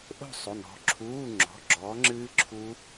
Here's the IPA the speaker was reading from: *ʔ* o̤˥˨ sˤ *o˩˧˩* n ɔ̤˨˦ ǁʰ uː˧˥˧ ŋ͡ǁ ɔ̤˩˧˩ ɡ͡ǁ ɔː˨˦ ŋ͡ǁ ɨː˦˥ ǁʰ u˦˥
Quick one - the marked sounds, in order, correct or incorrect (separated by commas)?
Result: correct, correct